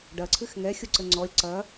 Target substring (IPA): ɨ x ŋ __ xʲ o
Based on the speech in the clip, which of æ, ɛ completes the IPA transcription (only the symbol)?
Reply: ɛ